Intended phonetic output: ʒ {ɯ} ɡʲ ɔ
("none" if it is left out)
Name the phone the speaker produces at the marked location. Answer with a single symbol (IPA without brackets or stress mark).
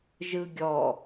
ɯ